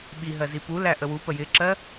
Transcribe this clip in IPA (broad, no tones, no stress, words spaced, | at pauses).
ɓiɦɜzi pulæ ʔəwu pəjɪǁɜ